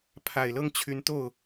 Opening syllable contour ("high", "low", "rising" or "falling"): low